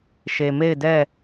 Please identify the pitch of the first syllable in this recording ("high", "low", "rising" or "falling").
low